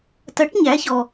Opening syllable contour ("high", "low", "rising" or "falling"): rising